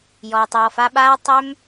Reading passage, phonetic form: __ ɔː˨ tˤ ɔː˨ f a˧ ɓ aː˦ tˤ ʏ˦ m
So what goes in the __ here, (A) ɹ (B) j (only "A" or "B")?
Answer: B